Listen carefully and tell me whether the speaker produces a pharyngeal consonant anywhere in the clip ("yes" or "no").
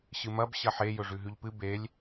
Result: yes